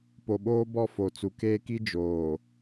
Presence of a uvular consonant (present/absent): absent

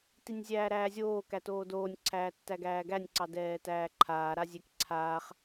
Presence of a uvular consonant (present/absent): present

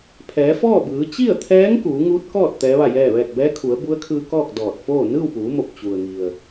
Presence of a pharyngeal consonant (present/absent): absent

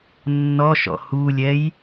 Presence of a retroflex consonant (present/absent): absent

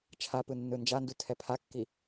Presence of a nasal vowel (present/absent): absent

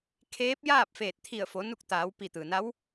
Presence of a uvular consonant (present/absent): absent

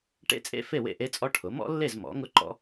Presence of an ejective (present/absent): present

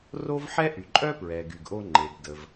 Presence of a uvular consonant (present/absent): absent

